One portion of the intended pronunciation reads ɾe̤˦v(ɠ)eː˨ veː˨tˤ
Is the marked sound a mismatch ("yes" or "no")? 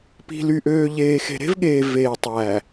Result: no